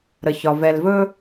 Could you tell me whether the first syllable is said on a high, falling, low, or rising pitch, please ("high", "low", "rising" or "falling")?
low